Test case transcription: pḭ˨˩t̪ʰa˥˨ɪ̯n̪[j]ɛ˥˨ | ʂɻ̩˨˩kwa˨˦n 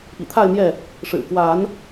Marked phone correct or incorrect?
correct